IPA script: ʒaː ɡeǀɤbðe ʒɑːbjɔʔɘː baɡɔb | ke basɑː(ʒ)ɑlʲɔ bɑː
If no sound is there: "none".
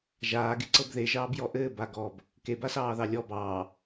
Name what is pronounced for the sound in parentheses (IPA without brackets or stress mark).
ð